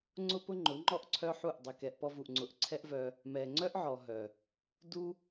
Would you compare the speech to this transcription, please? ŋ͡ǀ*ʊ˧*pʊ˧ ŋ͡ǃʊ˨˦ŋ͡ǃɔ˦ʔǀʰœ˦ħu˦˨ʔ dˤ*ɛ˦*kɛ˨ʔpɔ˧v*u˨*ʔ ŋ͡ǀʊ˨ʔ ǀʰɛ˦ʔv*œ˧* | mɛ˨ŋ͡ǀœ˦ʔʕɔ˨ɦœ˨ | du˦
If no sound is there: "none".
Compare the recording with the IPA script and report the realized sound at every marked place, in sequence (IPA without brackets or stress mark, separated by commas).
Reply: ʊ˧, ɛ˨, u˨, œ˧